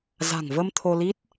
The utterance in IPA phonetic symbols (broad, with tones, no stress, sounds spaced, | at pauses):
z a̤˨˩ ŋ v ə˧ m t̪ʰ o˧ l i˦˥ t̚